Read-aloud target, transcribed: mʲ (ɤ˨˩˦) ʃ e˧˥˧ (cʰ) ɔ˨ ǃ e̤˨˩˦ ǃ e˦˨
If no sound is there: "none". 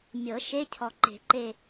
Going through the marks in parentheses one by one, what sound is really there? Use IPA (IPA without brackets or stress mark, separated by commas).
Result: ɤ˨˩˦, cʰ